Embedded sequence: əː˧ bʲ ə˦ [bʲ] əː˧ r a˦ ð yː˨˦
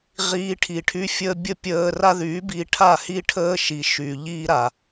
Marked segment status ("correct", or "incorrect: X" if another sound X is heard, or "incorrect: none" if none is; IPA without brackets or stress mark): incorrect: pʲ